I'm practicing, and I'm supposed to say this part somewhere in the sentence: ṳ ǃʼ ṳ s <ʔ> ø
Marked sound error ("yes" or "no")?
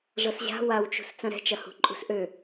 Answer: no